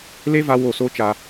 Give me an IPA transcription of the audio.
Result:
l e˦ v a˧ w o˦˨ s o˦ t͡ʃ a˧

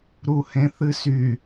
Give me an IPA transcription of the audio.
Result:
ɾ u h ẽ θ ɨ s y

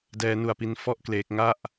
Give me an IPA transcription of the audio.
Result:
d ɛː˦˥ n u˧ a̯ p i˦˥ n f ɔ˥˩ ʔ k l eː˦˥ k̚ ŋ a˥˩ ʔ

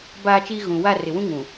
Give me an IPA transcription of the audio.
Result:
b aː˦ t͡ʃ iː˦ ɣ ũ˨ w a˦˨ r ɪ˨ w ũ˦ ŋ ũ˨

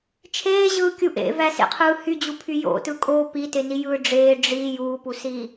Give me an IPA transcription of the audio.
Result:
t͡ʃʰ eː ʑ ɯː kʲ u ʔ ḛ v æ s ḛ qʰ ɯː h y d͡ʑ u pʰ y j o̰ t ɯ kʼ o p i t e n i j ɯː ɖ͡ʐ eː ɖ͡ʐ i j uː p u s iː

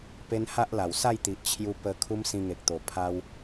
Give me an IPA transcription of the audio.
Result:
p e˦ n h a˦ ʔ l a˨˩ w s a˥˧ j t̪ i˨ ʔ t͡ɕʰ j u˧ p ə˧ kʰ u˦ m s ĩ˧ ŋ e˨ k̚ t̪ o˨˩ pʰ a˧ w

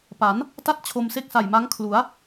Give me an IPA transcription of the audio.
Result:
p a˩˦ n | t a˥˩ t̚ t͡ɕʰ o˧ m s e˥˩ k̚ s a˨˩ j m a˦˥ ŋ kʰ l u˩˦ a̯

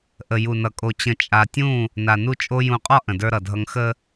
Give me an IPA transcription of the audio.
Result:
ʔ ə˨ j u˨ n ʌ˨ kʼ o˨ t͡ɕ ə̃˨ t͡ʃʼ a˨ tʲ ũ˦˨ | n a˨ n u˦ t͡ʃʼ o˦ j ũ˨ qʼ ɒ˦ ʔ ə̃˨ d ə˞˦ ɾ ʌ˨ dʱ ʌ˦ ŋ x ə˦

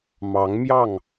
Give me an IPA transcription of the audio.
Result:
m ɑ˨˦ ŋ m j ɑ˥˨ ŋ

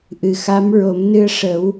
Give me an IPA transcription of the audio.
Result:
ʔ ɨ˨˩ x a˧˥ m ɹ o˨˩˦ m n ɨ˧ ə̯ ʂ ə˨˩˦ w

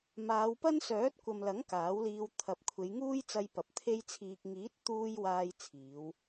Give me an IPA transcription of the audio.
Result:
m aː˨˧ w p ɐ˥ n s œː˨˥ t̚ kʷ ɐ˨ m l ɐ˨˥ ŋ k aː˨˥ w l iː˧ w t̪ʰ ɐ˨ p̚ kʷʰ e˨˧ j ŋ uː˥ j t͡s ɐ˧ j p ɐ˨ p̚ t̪ʰ e˧ j t͡sʰ iː˨ k̚ ŋ iː˨˥ t̚ t̪ uː˧ j w aː˧ j t͡sʰ iː˨˧ w

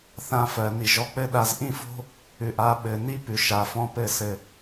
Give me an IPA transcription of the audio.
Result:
θ ã˧ f ɜ˨ n i˨ ʒ ɔ˧ k͡p ɘ˦ ɗ a˧ z ʔ ĩ˦ f o̤˦ | ʉ˨ ʔ a˨˦ ɓ ɘ˨ n i˦ p ʉ˨ ʃ a˨ f ɔ̃˦ p ɘ˦˨ s ɘ˨

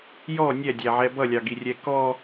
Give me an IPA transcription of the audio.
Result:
j ɔ nʲ ɛ dʲ æ ʕ ɛ b ʌ lʲ ɑ ɡ i rʲ ɛ k ɔ

